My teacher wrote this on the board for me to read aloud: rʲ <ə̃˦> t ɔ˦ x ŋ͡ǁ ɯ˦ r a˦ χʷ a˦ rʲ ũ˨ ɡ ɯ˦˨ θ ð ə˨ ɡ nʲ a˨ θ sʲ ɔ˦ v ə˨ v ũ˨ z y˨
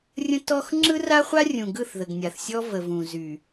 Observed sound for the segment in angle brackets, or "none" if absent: ə̃˦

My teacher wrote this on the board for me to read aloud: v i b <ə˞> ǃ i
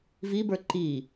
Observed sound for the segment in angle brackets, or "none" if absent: ə˞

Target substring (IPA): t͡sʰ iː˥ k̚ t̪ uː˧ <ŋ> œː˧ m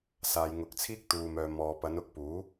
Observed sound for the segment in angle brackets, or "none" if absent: m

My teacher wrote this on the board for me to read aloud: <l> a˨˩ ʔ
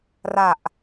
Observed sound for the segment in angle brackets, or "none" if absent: r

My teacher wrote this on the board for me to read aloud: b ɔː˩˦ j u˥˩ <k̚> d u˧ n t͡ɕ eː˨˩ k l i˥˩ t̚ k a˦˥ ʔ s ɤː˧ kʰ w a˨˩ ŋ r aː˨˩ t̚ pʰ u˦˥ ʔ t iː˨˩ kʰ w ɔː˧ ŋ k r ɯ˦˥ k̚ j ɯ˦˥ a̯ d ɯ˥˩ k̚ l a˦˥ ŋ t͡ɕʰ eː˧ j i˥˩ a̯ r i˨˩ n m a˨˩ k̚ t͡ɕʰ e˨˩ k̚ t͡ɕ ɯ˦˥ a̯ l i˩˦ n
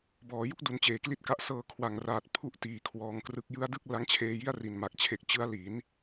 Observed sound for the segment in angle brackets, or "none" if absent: k̚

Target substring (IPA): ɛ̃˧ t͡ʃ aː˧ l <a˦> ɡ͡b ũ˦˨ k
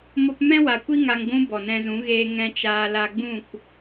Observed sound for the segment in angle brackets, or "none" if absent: a˧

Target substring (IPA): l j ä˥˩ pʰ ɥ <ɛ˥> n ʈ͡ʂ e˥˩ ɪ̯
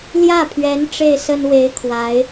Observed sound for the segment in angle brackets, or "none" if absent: ɛ˧˥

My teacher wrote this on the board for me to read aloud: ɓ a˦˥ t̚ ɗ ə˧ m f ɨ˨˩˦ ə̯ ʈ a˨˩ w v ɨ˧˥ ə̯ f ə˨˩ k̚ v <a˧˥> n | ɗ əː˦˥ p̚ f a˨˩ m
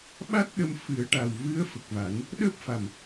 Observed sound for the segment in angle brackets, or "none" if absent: a˨˩˦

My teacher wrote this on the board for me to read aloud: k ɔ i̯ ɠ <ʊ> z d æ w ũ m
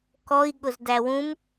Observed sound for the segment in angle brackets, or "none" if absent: ʊ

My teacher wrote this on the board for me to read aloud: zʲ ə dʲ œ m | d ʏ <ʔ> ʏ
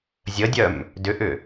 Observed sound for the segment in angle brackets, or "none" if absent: ʔ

